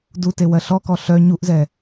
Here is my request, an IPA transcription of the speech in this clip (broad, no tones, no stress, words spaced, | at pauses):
dutewɜ ɬɔkɔ ɬœ ɲuʔzɛ